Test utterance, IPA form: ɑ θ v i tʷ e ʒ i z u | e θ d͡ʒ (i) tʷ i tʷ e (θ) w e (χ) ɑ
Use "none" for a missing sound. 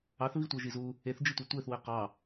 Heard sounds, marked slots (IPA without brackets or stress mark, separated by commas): i, θ, q